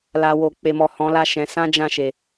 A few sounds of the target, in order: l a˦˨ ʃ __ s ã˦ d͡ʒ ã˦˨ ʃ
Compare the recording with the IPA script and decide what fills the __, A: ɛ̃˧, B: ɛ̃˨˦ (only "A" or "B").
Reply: B